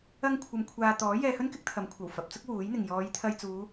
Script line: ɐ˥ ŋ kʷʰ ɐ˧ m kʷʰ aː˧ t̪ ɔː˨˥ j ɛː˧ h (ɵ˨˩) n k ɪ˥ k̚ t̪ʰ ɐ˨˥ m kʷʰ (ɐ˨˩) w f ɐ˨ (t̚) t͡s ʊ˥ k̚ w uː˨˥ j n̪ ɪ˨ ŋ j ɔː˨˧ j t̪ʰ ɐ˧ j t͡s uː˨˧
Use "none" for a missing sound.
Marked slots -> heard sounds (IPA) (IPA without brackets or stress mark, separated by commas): ɵ˥, ɐ˨˩, p̚